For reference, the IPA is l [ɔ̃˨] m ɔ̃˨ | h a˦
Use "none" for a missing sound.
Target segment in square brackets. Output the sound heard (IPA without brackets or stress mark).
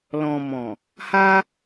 ɔ̃˨